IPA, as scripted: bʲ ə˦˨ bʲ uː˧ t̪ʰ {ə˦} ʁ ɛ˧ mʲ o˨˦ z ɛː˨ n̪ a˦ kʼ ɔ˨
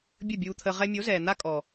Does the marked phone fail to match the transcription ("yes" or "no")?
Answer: yes